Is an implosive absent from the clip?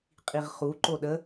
no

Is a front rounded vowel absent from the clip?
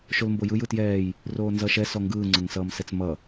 yes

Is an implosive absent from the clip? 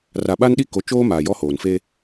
no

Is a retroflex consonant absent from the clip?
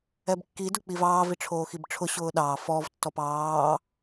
no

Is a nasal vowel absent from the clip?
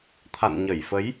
yes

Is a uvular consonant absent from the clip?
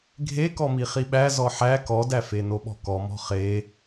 no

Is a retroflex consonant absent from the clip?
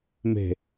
yes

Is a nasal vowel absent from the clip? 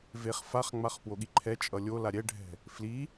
yes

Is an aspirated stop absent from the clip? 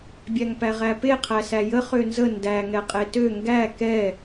no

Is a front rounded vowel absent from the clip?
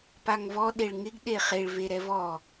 yes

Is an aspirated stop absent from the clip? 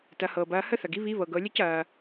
yes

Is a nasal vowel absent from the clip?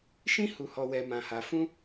no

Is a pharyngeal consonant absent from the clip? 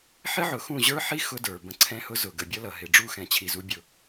no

